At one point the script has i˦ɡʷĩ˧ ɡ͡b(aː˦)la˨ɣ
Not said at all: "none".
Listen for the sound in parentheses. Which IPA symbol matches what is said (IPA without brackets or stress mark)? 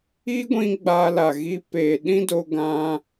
aː˧